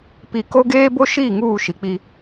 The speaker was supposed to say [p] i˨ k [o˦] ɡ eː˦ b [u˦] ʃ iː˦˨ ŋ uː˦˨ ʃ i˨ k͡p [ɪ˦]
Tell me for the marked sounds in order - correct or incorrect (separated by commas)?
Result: correct, correct, incorrect, incorrect